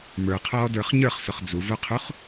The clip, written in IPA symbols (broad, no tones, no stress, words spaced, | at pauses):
mə˞qʰɔːdə˞χ ɲə˞χsʊχ d͡zuvoqʰuχ